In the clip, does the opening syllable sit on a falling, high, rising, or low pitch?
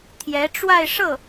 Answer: rising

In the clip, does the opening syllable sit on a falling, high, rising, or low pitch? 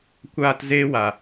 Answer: high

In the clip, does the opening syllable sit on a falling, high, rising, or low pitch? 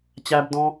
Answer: high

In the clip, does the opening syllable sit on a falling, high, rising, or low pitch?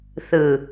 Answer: low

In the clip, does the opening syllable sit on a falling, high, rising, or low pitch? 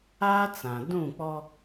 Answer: high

